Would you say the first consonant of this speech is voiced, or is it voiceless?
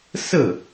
voiceless